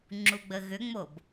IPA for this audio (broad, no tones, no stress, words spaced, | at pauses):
ŋ͡ǁuɡ͡bəɣʏŋ͡mob